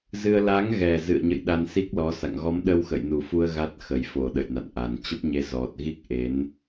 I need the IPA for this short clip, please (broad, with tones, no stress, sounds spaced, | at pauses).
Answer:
z ɨ˧ ə̯ l a˨˦ ŋ ɣ ɛ˨˩ z ɨ̰˧˨ ə̯ ɲ ə̰˧˨ j ɗ a˧ n s i˦˥ k̚ l ɔ˨˦ s a̰˧˨ ŋ ɣ ɔ˨˦ m ɗ ə˧ w x ə̰˧˨ j n u˨˩ f u˧ ə̯ ɣ a˦˥ t̚ x ə˨˩ j f o˨˩ ɗ ə̰˧˨ j n a̰˧˨ n ʔ a˨˩ n t͡ɕ ə˦˥ p̚ ɲ e˧ z ɔ˨˩ t̚ ɣ i˦˥ k̚ ʔ e˨˦ n